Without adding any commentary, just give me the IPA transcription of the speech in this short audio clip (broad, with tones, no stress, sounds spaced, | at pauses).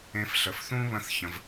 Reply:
ẽ˧ f ɬ ə˨ f θ ũ˦ β ə̃˦ θ ç ə̃˧ v